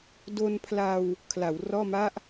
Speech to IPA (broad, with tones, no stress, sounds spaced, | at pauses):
d o˧ n pʰ l a˧ w | kʰ l a˩˦ w r ɔː˥˩ m a˥˩ ʔ